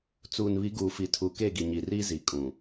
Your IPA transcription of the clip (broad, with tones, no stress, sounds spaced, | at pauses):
t͡s uː˨ n β i˨˦ ɡ uː˨ f i˨ tʰ u˨ k eː˦˨ ɡ i˨ ɲ iː˨ r iː˦ z i˨ kʼ ũ˨